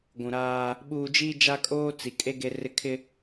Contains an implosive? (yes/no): yes